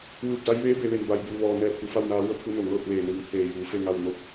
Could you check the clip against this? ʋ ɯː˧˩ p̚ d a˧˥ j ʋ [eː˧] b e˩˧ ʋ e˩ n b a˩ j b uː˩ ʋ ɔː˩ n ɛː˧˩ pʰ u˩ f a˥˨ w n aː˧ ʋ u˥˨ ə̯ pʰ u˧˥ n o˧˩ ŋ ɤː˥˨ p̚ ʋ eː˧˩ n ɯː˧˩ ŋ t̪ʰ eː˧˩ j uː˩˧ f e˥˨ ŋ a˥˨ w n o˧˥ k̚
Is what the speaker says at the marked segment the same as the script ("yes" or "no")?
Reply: no